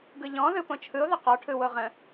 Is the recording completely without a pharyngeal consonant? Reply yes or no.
yes